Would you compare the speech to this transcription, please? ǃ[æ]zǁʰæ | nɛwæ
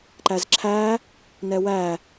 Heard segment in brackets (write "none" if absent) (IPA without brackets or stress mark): æ